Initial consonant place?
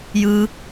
palatal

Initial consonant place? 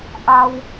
glottal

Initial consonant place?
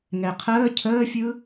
velar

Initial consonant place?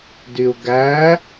alveolar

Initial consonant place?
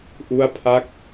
glottal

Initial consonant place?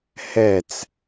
glottal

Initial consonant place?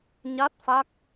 palatal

